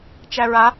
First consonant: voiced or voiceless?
voiceless